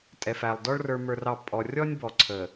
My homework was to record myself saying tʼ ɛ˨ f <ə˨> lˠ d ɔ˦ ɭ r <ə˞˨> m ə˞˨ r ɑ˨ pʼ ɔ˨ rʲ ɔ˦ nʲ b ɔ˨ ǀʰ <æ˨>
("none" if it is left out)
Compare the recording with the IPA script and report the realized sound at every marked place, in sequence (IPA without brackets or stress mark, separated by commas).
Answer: æ˨, ə˞˨, ə˨